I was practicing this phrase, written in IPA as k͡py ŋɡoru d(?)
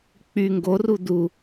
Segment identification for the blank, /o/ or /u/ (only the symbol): u